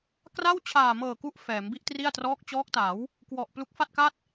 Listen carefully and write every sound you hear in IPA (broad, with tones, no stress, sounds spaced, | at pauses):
k r a˥˩ w t͡ɕʰ aː˨˩ m ɤː˨˩ k u˦˥ ʔ f ɛː˩˦ m b i˥˩ ʔ t r i˥˩ a̯ t r ɔː˦˥ k̚ t͡ɕ ɔː˦˥ k̚ t a˩˦ w | k w ɔ˨˩ ʔ p l u˦˥ k̚ f a˥˩ t̚ k a˥˩ t̚